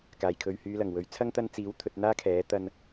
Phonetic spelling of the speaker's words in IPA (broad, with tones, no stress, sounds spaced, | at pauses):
k aː˨˩ j kʰ ɵ˨ ɥ h yː˨˧ l ɐ˨˩ ŋ w ɵ˨˧ ɥ t͡sʰ ɐ˥ ŋ t̪ ɐ˧ n t͡s iː˨˥ w t̪ʰ ɵ˧ t̚ n̪ aː˥ kʰ ɛː˨˥ t̪ ɐ˧ n